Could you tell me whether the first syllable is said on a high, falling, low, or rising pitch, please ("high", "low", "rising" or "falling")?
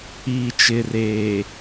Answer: low